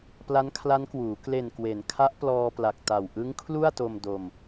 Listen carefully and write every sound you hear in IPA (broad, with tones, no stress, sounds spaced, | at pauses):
p l a˦˥ n kʰ l a˦˥ n k w uː˩˦ k l e˨˩ n k w e˩˦ n kʰ a˦˥ ʔ p l ɔː˧ p l a˨˩ k̚ t a˨˩ w ʔ ɯ˦˥ ŋ kʰ l u˥˩ a̯ t o˧ m d o˧ m